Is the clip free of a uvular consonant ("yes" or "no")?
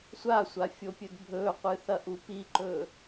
no